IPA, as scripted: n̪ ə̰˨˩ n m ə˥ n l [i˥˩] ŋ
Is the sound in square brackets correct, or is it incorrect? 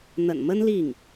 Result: correct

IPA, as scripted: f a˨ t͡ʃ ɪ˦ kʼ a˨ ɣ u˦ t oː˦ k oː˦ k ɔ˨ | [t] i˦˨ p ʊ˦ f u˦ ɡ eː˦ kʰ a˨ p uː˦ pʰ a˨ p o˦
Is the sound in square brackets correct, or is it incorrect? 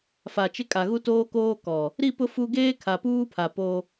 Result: incorrect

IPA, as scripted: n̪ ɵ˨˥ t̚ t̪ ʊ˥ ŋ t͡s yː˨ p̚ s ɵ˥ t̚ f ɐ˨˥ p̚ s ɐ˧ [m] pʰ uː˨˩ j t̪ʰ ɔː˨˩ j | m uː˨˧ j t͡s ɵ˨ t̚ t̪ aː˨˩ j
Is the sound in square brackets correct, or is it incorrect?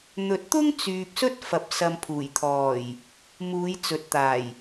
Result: correct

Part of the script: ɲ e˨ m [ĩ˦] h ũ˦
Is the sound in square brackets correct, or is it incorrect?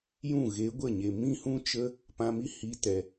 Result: correct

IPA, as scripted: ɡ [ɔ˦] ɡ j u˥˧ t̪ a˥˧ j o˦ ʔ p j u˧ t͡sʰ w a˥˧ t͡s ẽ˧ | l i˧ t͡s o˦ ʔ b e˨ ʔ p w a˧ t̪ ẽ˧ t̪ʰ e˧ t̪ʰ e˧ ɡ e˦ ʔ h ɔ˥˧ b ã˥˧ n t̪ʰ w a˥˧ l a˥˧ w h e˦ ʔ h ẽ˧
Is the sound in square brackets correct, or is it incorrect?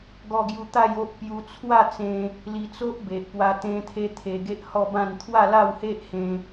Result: correct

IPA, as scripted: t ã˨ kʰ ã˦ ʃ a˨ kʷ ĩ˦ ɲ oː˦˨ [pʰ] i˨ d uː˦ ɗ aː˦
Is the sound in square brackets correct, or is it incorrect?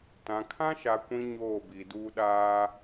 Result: incorrect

